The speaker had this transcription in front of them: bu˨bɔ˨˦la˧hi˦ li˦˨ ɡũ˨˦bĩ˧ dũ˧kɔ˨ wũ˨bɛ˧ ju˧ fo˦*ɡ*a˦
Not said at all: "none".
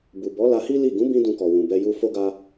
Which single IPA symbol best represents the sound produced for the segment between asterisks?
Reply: ɡ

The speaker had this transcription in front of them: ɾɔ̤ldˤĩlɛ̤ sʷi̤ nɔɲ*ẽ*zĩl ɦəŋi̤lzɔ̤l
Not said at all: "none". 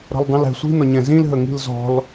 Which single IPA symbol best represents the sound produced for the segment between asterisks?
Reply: ɛ̃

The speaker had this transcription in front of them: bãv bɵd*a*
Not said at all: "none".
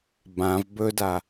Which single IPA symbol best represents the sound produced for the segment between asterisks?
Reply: a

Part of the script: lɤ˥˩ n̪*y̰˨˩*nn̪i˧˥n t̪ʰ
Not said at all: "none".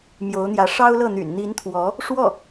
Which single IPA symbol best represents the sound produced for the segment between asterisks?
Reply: y̰˨˩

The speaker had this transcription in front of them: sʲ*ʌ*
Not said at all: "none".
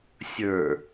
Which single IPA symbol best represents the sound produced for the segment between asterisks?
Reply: ə˞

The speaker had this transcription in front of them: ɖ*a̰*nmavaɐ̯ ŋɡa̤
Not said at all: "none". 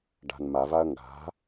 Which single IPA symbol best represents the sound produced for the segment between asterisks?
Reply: a̤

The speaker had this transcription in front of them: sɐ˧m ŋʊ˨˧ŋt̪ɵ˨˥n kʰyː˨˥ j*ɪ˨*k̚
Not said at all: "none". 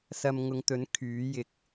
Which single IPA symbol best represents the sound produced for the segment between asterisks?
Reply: ɪ˨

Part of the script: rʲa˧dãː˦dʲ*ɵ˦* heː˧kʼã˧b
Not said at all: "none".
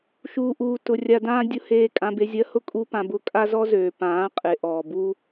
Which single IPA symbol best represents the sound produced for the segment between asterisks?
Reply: ʊ˦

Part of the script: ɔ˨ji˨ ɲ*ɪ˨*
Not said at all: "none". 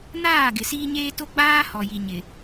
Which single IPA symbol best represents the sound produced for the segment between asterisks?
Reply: ɪ˨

